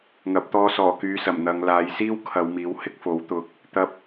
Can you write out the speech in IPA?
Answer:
ŋ ɐ˨˥ p̚ t̪ ɔː˧ s ɔː˨˩ k yː˨ s ɐ˨˩ m n̪ ɐ˨˧ ŋ l aː˨˧ j s iː˥ w kʰ ɐ˨˧ w m iː˨˥ w h ɪ˥ k̚ f o˨˥ w t̪ ʊ˨ k̚ | t̪ ɐ˧ p̚

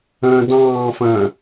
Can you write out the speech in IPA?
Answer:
ə̃ː d ɑ̃ː f ə̃ː

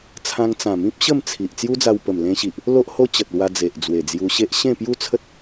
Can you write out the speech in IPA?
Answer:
t͡sʰ ã˧ ŋ t͡s ã˨˩ m ĩ˦ p̚ ɕ ə˥˧ m t͡sʰ i˨ ʔ t͡s j u˦ d͡z a˧ w p ə˨˩ m l ẽ˧ ɕ i˨ ʔ | l o˦ ʔ h o˦ t͡ɕ ə˨ t̚ l w a˧ d͡z e˨ ʔ d͡z w e˨˩ d͡z j u˧ ɕ e˦ ʔ ɕ ẽ˥˧ p j u˥˧ t͡sʰ ə˦ t̚

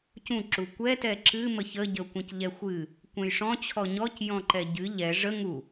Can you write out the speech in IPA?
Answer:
c ũ ǁ u kʷ ɛ t ɛ ǁ ɨ m ə ç ə ɟ ə ʊ̯ kʷ ə̃ c ʎ ɛ xʷ ɨ | kʷ ɛ̃ j ʂ ɔ̃ t͡ɕʰ ɔ ɲ ɔ c j ɔ̃ ǃ ɛ ɟ ɨ ʎ ɛ ʐ ə ŋ u

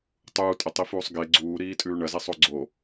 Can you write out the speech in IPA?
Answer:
tˤ uː tʼ ɐ tˤ i f uː sˤ ɡ e ɡ͡ǀ uː ɾ iː tʼ ʉː ɳ ɐ z e sˤ o ɡ͡ǀ o

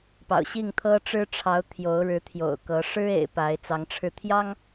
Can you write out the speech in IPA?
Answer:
p ɑ̰˨˩ ʊ̯ ɕ i˥˨ ŋ t̪ʰ ɤ˦ ʈ͡ʂ ɻ̩˦ ʈ͡ʂʰ ɑ˨˦ ʊ̯ t̪ʰ j o˨˦ ʊ̯ ɻ ɻ̩˨˦ t̪ʰ j o̰˨˩ ʊ̯ k ɤ˨˦ ʂ ɻ̩˦ ḛ˨˩ ɪ̯ p a˨˦ ɪ̯ t͡s ɑ˨˦ ŋ ʈ͡ʂʰ ɻ̩˧ t̪ʰ j ɑ˦ ŋ

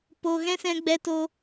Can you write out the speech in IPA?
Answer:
p o˨ ɣ ɛ̃˦ s ɛ̃˧ ɡ͡b ɛ˧ t o˧

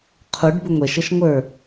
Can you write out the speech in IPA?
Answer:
qʰ u ɖ b ʊ ŋʷ ɛ ʃ ʌ ʃ ŋʷ ə˞

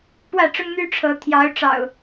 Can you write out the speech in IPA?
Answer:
p w ä˥˨ ʈ͡ʂ ʊ˦ ŋ n̪ y˦ ʈ͡ʂʰ ɤ˨˦ t̪ʰ j ɑ˨˦ ʊ̯ ʈ͡ʂ ɑ̰˨˩ ʊ̯

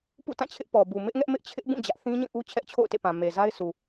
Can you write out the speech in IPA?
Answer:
p ṵ˦˨ t ã˦˨ t͡ɕʰ ɪ˦ ʔ p ɔ˨ b u˨ m ɪ˦ ʔ ŋ ɛ˦ ʔ m ɪ˦ ʔ t͡ɕʰ ɪ˦ ʔ b ũ˦˨ d͡ʑ ä˦ ʔ θ ĩ˦ ɲ ĩ˦˨ ʔ u˦ t͡ɕʰ ɛ˦ ʔ t͡ɕʰ o̰˦˨ ʊ̯ t ḛ˦˨ p ã˨ m e˨ z a˦ ɪ̯ sʰ u˨

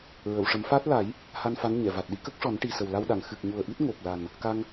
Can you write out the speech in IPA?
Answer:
ɹ ə˨˩˨ w ʂ ə˨˩˦ m f aː˦˥ t̚ l a˨˩˦ j | h a˧ n f a˧˥ n ɲ ɛ˨˩˨ v a˨˩ t̚ ɗ i˧˥ k ə˦˥ k̚ ʂ ɔ˨˩˦ n ʈ i˨˩ s ə˨˩ w l a˧ w ɗ a˨˩˨ ŋ x ɨ˨˩ k̚ ɲ u˨˩ ə̯ ʔ i˦˥ t̚ ŋ o˨˩ p̚ l a˨˩ n | k a˧ ŋ

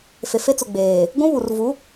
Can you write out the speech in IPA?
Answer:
f e˨ f e˦ t͡s ʊ˨ ɡ͡b eː˨ | ɡʷ ũ˦ β u˨ r v u˨˦

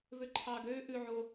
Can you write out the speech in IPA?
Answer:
v ø ǃʰ ɑː ɡ øː ʔ ʉ ʕ o

